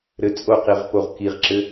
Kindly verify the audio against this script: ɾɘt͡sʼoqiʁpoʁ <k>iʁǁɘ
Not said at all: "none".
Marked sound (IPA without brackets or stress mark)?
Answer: k